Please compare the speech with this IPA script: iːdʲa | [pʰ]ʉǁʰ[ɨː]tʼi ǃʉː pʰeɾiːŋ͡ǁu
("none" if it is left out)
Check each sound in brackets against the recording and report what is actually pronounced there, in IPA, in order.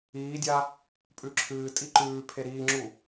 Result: pʼ, ɨː

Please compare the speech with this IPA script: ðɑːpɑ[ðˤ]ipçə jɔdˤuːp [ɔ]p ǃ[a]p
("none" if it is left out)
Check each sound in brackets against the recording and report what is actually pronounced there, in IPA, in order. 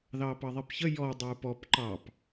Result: ðˤ, ɔ, ɑ

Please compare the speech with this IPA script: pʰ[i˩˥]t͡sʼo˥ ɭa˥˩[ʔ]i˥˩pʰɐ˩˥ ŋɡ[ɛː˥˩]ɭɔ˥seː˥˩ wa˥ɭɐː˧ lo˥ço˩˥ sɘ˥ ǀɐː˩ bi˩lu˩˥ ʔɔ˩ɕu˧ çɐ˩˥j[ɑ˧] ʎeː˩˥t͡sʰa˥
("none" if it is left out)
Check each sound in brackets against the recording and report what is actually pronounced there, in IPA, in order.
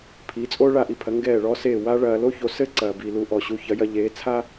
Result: i˩˥, ʔ, ɛː˥˩, ɐ˧

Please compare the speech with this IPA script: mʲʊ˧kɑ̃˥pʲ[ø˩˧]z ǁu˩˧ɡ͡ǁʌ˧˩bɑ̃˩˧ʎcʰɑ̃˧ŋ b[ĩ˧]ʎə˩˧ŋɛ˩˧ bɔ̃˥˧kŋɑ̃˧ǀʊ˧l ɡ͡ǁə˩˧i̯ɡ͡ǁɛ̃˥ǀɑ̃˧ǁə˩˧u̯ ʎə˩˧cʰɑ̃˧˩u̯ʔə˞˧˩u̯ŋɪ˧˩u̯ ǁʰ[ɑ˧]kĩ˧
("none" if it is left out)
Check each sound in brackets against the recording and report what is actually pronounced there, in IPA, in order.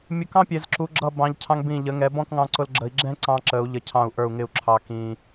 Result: ɛ˩˧, ĩ˧˩, ɑ˧

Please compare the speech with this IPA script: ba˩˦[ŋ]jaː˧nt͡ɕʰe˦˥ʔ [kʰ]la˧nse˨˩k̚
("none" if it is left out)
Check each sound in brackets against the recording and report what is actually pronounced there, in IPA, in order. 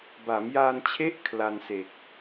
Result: m, kʰ

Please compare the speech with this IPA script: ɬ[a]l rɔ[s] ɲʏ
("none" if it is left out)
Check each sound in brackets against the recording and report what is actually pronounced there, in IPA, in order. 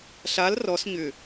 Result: a, s

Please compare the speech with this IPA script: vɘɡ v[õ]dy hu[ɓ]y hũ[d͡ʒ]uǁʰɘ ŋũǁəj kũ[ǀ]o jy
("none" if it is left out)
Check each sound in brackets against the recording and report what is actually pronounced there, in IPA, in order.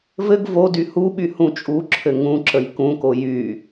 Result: o, ɓ, t͡ʃʼ, k

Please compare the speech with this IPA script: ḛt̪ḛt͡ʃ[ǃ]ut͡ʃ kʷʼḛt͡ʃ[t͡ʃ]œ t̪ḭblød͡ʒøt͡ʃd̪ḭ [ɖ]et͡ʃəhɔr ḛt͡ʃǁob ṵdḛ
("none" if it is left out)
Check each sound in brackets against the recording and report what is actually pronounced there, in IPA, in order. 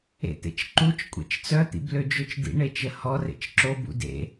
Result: ǃ, t͡s, ɳ

